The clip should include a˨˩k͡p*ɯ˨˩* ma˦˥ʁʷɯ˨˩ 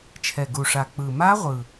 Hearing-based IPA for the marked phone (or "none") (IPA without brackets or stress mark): ɯ˨˩